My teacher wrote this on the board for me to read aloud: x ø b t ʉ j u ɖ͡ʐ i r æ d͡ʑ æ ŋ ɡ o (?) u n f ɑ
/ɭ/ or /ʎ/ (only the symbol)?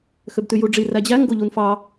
ʎ